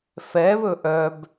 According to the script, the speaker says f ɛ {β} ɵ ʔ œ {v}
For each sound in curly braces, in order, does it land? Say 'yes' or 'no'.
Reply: yes, no

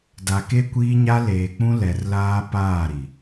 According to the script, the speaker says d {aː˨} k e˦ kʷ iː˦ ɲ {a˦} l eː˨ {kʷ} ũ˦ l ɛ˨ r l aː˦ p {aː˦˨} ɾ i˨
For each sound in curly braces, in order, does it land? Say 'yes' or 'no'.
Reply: no, yes, no, yes

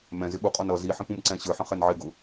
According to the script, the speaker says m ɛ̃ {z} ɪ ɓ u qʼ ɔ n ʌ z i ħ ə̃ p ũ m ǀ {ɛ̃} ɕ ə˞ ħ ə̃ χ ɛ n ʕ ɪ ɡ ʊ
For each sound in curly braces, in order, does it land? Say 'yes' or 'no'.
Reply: yes, yes

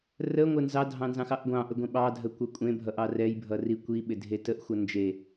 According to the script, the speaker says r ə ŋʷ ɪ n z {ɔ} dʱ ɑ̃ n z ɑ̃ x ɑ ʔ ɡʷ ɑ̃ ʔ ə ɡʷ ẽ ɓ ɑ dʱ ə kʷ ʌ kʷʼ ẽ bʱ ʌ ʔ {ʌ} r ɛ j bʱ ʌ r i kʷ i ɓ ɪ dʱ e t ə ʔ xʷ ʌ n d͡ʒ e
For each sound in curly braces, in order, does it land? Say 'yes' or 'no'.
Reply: no, no

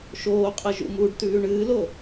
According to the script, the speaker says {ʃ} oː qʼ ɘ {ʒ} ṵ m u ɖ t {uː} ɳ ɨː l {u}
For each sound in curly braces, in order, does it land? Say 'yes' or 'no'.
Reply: yes, yes, no, no

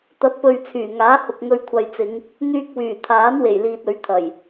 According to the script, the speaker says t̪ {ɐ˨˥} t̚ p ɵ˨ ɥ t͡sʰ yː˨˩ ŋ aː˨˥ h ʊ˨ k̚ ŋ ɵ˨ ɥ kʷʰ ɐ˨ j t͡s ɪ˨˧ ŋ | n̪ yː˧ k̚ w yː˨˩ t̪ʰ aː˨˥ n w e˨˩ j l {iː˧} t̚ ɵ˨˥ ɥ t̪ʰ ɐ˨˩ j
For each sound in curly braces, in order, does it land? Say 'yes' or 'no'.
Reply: yes, no

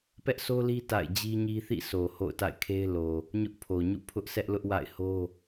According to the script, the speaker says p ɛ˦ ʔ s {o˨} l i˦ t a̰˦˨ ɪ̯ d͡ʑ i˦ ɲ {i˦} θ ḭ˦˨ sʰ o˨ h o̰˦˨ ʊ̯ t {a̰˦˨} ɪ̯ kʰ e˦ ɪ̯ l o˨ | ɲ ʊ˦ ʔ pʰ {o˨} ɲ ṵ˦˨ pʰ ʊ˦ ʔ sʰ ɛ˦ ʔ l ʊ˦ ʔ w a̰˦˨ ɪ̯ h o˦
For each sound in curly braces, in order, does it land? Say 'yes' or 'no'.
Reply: no, yes, yes, yes

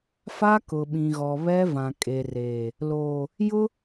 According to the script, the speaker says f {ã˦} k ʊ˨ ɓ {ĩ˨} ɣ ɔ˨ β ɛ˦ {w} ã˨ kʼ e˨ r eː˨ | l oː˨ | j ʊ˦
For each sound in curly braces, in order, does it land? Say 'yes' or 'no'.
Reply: no, yes, no

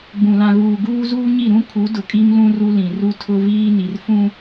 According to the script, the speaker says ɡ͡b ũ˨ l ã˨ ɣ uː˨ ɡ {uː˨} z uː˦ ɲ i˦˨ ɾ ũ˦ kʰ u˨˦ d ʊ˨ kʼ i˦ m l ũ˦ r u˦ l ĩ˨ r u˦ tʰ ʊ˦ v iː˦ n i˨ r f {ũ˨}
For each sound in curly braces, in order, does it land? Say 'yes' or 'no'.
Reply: no, no

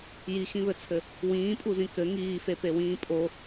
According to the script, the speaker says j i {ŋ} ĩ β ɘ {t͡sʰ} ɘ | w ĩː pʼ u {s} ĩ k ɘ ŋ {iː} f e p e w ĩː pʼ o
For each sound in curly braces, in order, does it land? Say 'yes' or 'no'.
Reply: no, yes, no, yes

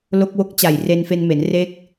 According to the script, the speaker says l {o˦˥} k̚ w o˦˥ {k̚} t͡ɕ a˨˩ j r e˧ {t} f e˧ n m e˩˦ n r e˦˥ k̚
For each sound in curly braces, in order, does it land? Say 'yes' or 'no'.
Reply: yes, yes, no

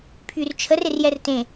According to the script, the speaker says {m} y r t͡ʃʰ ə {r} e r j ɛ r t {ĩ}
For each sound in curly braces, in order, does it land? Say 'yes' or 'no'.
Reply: no, yes, no

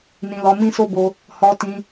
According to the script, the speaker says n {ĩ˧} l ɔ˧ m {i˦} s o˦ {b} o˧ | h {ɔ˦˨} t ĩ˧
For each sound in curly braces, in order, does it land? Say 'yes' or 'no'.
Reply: yes, no, yes, no

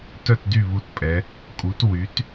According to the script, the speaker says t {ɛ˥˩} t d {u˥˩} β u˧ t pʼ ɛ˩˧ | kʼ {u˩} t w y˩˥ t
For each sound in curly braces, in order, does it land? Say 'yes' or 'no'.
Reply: no, no, no

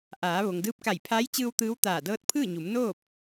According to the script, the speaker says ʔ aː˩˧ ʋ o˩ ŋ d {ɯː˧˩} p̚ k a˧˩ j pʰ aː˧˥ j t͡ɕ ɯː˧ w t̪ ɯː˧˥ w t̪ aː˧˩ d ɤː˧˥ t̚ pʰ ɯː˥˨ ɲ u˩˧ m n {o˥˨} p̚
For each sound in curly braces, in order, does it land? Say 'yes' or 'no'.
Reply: no, no

